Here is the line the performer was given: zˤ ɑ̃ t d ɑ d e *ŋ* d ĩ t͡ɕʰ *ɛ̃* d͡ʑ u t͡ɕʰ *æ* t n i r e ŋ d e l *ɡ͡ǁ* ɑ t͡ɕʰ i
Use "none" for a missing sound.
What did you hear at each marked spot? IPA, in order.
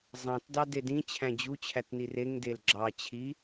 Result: none, æ̃, æ, ɡ͡ǁ

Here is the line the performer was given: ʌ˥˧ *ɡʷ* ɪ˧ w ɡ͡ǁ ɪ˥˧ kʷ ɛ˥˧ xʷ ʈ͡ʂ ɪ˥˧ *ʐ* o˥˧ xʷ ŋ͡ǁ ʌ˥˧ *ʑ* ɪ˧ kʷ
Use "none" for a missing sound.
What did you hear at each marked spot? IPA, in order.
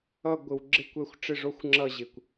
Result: ɡʷ, ʐ, ʑ

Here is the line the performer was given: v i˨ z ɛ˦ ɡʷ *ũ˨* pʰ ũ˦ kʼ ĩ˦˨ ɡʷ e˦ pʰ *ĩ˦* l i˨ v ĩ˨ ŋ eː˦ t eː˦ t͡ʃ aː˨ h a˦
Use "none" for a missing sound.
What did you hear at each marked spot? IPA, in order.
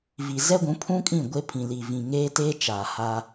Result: ũ˨˦, ĩ˨

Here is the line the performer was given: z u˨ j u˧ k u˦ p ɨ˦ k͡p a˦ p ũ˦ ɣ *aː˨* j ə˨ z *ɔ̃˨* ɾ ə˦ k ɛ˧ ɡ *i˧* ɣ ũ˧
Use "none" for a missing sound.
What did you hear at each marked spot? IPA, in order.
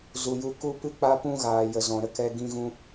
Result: aː˨, ɔ̃˨, ĩ˧

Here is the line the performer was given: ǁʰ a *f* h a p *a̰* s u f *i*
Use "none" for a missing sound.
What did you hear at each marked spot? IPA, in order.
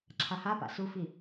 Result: none, a̰, i

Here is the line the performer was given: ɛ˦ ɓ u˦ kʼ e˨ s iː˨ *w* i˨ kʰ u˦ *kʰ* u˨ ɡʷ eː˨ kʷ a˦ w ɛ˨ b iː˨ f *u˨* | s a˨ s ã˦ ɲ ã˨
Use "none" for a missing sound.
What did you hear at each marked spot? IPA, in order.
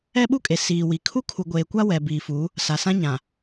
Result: w, kʰ, u˨˦

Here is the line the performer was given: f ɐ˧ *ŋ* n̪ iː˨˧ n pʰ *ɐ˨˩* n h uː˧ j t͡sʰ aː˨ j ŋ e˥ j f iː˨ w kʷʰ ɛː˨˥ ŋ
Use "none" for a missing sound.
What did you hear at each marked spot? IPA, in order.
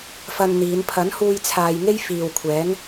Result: n, ɐ˨˥

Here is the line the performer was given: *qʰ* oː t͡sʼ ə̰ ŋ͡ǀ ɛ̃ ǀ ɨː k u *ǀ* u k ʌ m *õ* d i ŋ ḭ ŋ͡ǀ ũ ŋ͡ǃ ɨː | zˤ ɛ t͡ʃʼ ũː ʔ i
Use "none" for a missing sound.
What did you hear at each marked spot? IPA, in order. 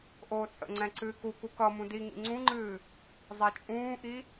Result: ʔ, k, ũ

